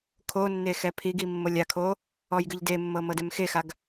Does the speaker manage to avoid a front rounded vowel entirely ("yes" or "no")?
yes